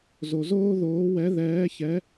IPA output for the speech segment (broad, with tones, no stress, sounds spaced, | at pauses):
z o˧ z oː˥ ð oː˧˥ w ɛ˧˥ ð ɛː˧˥ ç ɛ˧˥